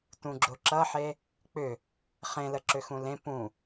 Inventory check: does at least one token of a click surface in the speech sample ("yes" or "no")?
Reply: yes